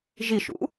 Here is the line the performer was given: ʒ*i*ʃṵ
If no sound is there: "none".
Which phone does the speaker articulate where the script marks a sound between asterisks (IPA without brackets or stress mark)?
i